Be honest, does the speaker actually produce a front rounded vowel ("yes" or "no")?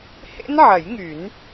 yes